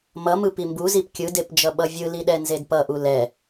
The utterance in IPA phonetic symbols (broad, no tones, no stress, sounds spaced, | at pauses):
m ʌ m ɯ p i m b u z i p kʲ ɯ d e p d͡ʒ ʌ ɓ ʌ vʲ ɯ l i ɗ ɛ n z e d p ʌ ʔ u l ɛ